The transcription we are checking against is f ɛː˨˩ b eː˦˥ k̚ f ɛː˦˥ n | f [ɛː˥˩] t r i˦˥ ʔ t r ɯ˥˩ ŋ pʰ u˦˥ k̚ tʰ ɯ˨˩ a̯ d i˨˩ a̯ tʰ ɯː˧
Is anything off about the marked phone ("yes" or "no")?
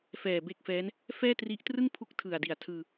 no